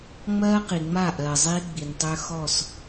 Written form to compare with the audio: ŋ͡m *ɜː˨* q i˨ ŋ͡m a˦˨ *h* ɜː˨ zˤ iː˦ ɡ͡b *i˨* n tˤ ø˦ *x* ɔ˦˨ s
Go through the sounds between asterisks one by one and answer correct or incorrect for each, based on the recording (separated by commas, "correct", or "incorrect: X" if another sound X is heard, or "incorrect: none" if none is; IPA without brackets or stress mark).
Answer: incorrect: ɜː˦, incorrect: ʔ, correct, correct